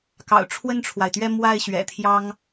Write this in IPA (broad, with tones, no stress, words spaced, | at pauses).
kɑ̰˨˩ʊ̯ʈ͡ʂʰwə˥˩nʈ͡ʂʰwa˩ɪ̯t̪ɥɛ˥˧ mwa˥˩ɪ̯ ɕɥɛ̰˨˩t̪ʰjɑ˥ŋ